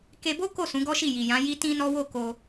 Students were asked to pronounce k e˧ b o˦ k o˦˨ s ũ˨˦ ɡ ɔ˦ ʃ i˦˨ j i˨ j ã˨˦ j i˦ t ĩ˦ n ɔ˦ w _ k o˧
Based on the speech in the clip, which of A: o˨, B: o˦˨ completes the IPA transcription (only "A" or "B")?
B